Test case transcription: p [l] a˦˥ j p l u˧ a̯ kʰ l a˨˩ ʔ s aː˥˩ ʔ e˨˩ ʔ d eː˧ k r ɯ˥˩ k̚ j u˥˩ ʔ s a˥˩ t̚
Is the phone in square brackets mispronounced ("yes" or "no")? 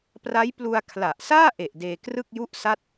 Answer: yes